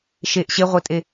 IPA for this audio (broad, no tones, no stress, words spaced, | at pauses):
ʃeʔ ɕeʁʷetʼe